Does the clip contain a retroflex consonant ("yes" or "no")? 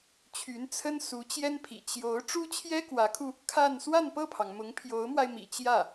yes